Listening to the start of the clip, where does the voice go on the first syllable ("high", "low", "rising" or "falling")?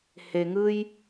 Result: low